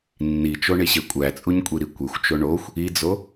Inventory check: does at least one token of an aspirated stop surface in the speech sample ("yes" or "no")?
no